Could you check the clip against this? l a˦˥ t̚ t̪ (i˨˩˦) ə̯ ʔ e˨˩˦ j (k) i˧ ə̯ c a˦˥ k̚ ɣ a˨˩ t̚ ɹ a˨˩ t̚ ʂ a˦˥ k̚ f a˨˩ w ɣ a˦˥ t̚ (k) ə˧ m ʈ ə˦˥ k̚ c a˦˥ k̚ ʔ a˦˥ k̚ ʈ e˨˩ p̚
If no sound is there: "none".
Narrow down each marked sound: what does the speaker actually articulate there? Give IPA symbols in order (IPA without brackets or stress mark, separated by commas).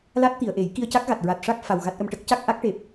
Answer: i˨˩˨, k, ʔ